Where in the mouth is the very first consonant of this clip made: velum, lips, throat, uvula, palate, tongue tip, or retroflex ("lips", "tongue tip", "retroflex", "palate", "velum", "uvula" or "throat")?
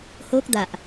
throat